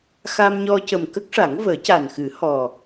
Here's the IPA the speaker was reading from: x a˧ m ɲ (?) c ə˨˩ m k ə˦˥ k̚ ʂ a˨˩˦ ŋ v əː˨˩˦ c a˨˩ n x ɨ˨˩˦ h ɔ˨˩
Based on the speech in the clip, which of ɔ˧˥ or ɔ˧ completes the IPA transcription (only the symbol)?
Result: ɔ˧